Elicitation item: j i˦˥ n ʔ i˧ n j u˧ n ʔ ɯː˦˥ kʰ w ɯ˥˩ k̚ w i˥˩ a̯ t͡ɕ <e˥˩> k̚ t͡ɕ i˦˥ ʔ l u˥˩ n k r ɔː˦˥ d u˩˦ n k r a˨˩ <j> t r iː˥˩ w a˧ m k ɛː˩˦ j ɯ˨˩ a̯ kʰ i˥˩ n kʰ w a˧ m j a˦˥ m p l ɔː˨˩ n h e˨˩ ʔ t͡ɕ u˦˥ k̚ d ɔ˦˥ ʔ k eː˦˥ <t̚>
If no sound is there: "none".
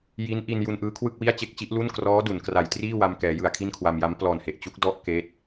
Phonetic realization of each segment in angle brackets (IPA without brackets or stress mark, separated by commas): e˥˩, j, t̚